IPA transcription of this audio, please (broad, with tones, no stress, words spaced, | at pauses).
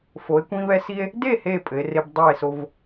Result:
fo˩˧e̯kʷĩ˧βɛ˧ si˧e̯ | de˥˨ he˥˨ pʼɘ˩˧e̯re˧b dˤa˥˨e̯so˧v